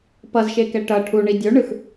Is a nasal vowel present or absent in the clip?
absent